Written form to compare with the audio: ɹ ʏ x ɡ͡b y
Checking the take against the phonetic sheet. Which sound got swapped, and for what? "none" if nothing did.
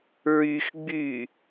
ʏ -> y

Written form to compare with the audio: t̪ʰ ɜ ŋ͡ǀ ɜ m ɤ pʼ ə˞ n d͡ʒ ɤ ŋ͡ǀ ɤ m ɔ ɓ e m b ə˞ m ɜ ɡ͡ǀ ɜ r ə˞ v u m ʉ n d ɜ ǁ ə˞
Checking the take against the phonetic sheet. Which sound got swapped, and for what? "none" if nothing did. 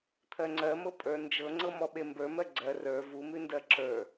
none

